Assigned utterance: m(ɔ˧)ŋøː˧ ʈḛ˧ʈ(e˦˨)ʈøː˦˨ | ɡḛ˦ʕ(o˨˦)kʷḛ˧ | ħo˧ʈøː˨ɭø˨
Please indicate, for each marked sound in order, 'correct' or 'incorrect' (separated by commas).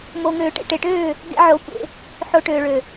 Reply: incorrect, incorrect, correct